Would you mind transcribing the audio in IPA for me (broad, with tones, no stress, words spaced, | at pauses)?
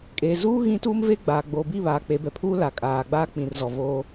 kʼeː˨zuː˦ ɣĩ˦tuː˦mveː˦ ɡ͡baː˨ ɡ͡boː˨bi˦˨βaː˨ k͡pe˨˦bɛ˨pʰuː˦ la˨kʼaː˨ɡ͡ba˦ k͡pĩ˨rzɔ˨voː˦